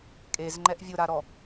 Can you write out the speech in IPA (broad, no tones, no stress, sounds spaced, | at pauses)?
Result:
kʼ e z ŋ͡ǃ ɛ ʔ vʲ ʊ ɾ a ɾ ɔ